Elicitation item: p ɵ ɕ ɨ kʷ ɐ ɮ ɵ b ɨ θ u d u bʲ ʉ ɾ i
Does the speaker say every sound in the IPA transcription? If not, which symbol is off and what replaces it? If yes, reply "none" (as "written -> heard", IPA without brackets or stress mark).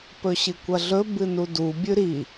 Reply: θ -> n